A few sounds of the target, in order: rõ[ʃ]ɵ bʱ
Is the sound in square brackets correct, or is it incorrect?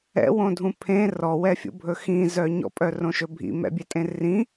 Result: correct